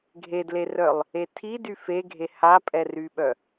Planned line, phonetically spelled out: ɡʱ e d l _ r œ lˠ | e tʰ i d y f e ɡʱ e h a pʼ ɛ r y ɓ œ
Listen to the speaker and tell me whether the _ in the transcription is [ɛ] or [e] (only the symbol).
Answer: e